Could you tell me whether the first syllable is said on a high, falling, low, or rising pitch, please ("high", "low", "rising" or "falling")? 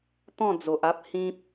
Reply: falling